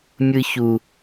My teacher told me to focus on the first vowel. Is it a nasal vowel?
no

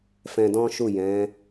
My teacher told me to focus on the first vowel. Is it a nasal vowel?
yes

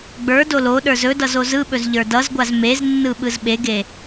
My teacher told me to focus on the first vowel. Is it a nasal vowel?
no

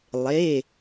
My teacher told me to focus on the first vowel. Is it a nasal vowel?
no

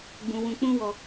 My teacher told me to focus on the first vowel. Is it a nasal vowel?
yes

